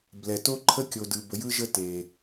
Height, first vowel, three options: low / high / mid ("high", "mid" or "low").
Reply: mid